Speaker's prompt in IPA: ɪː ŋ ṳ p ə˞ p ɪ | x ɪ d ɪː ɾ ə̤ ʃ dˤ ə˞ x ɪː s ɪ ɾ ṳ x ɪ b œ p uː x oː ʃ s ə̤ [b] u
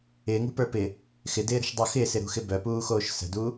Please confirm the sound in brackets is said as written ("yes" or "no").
no